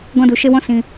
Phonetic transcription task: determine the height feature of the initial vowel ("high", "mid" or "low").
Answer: mid